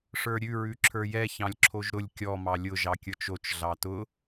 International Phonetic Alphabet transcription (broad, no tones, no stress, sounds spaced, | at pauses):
ʂ ə˞ ɾʲ ʉ ɹ ʉ ǁʰ ə˞ j ɛ ç ɑ̃ lʲ ǁʰ o ʒ ɾ ʊ lʲ kʲ ɔ m ɑ lʲ ʊ ʒ ɑ kʲ ə˞ t͡ʃ o t͡ʃ ɮ ɑ t ʊ